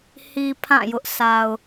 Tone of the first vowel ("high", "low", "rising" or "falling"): low